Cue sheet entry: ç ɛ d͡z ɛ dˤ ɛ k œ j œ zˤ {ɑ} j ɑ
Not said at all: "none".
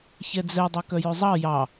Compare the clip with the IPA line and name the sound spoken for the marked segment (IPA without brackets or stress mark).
ɑ